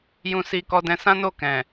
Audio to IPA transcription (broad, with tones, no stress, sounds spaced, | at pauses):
j ũ˧ s i˧ k ɔ˧ d ɛ̃˧ s ã˦ n o˦˨ k ɛ̃˨